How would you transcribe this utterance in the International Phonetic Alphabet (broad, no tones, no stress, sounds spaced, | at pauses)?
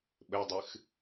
ɓ ɘ dˤ ɨ x